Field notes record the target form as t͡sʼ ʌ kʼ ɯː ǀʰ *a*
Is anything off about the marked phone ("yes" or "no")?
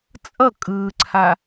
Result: no